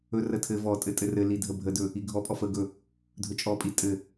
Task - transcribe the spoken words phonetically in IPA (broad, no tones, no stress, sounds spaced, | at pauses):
ɵ r ə tʰ ɘ v ɔ tʼ ɘ tʼ ɘ r ɘ l i dʱ ə bʱ ə d ɵ | i ɡʱ ɔ pʼ ɔ f ə ɡ ɵ | dʱ ɵ t͡ʃʼ ɔ pʼ i tʼ ɘ